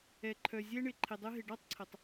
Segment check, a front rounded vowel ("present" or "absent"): present